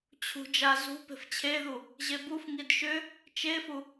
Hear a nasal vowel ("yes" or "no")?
no